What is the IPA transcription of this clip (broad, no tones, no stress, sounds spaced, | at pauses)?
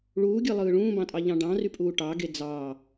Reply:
ɭ uː ɡʲ ɯ lˠ ɯː ɭ ũː b ɑ̃ tʼ ɑ ʎ ɑ̃ ɖ ɑ̃ r y pʼ uː ʈ ɑ ɡ e d͡z ɑ